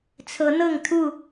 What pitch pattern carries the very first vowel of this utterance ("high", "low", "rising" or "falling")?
rising